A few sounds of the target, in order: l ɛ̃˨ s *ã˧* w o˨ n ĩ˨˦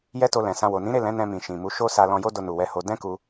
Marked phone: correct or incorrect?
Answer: correct